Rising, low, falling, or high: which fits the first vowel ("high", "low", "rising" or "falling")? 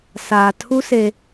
low